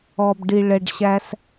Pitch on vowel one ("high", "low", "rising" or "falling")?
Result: low